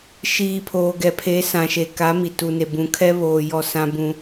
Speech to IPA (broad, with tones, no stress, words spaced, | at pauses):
ʃiː˨pʰoː˨ ɡɛ˨pʰe˨˦sã˨ʃe˨ ka˨˦mi˨tu˨ne˨ bũ˨kʰɛ˦ βoː˨ jɔ˦˨sã˦bũ˦